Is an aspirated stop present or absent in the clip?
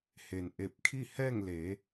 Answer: present